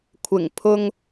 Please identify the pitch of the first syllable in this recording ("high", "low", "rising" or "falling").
low